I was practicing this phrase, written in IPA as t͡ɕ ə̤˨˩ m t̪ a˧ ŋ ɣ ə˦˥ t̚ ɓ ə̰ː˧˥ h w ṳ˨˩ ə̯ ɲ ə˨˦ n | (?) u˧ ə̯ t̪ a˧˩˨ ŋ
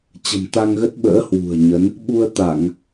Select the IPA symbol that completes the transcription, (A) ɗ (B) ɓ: B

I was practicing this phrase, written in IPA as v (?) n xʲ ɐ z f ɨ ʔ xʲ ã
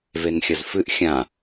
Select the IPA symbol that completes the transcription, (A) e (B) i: A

